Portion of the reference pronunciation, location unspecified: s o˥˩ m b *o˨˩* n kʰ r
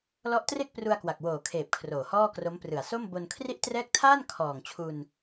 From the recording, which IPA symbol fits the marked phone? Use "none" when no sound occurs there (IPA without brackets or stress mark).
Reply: o˧